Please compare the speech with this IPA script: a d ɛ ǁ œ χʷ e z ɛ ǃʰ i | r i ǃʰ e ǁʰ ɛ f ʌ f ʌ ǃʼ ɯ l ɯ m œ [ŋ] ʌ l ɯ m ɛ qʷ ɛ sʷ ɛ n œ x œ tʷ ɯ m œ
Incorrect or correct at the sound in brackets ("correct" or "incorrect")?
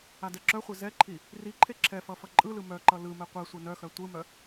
incorrect